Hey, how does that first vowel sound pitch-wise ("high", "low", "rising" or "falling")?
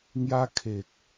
high